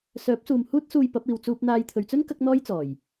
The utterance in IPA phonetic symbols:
sœː˨˥p̚suː˨m huː˥t̚ suː˧j pɐ˨˥p̚iː˨w t͡suː˧p̚n̪aː˧jt̪ʰɵ˨ɥt͡sɵ˥n kɐ˥k̚n̪ɔː˥jt͡sɔː˨˩j

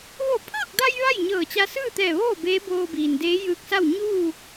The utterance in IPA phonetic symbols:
ʋo˧˩pʰɤː˥˨k̚da˧j ʋa˥˨jɲɤː˧˩t͡ɕa˧ sɯː˥˨t̪ɛː˧˩ʋoː˥˨ beː˧˥boː˧ biː˩ndeː˧˥ jɯː˧˥k̚sa˥˨w ɲuː˥˨

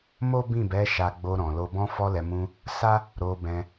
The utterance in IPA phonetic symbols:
mo˦bĩ˦˨bɛ˨˦ ʃa˧ɡ͡bo˧ɾɔ̃˨lo˧ bɔ̃˧fɔ˧lɛ˨mũ˧ | sa˦ | ɾo˧bɛ̃˧

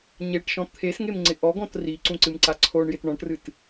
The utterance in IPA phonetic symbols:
ɲeʈʃɔ̃ t̪ʰesŋemŋ͡ǀɪ ʔɔɡɔ̃t riǀũǀɨmǀa ǀʰoɳjɪt ɳɔ̃ʈrɨt

